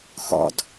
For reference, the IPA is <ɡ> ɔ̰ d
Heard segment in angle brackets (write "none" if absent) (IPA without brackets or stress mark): x